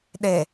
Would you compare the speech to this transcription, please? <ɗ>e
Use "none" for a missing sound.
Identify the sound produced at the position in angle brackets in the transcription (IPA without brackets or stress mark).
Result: ɗ